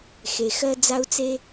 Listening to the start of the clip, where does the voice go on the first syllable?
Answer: low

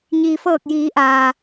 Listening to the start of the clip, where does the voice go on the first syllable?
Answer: low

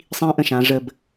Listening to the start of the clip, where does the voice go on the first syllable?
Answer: high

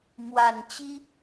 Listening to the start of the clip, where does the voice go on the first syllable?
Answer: low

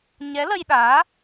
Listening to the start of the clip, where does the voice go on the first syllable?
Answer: rising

